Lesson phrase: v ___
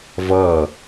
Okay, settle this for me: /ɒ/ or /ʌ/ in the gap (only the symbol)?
ʌ